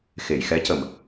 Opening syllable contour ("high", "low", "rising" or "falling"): low